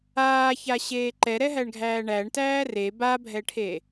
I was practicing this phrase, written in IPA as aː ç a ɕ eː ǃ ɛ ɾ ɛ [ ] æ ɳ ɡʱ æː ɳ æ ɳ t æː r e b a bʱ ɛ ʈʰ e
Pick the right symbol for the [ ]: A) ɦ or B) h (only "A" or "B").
A